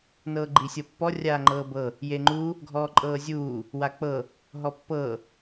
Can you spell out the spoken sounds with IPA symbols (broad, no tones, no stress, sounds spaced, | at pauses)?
n ɤː ɡ͡ǃ i sʲ ɤ pː ɔ rʲ aː ŋ͡ǃ ɤː b ɤ | j e ŋ͡ǃ u | ɡʱ ɔː ǃʼ ɤː zʲ uː | w a k͡p ɤ | ɦ ɔ pː ɤː